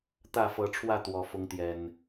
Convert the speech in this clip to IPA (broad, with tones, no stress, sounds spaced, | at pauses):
t̪ ä˥˨ f ɤ˨˦ ʈ͡ʂʰ w ä˥˨ t̪ w ɔ˨˩ f ʊ˨˦ ŋ t̪ j ɛ˨˩ n